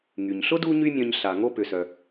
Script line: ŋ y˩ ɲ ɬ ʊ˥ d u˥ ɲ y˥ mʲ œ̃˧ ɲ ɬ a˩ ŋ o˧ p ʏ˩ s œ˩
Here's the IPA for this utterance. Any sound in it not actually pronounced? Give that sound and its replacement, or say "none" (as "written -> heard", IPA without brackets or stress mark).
none